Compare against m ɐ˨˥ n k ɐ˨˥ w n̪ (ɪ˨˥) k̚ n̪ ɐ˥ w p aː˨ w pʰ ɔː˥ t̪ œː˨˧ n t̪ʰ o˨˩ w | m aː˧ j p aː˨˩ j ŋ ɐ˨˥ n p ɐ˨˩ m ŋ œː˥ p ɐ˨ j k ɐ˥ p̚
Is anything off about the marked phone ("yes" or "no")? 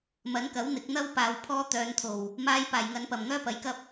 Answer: no